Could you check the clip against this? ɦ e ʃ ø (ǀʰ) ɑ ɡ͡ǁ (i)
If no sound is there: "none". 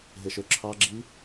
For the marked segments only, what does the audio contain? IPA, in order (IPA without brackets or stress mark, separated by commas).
ǁʰ, i